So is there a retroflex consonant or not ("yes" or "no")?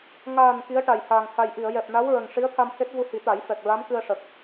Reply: yes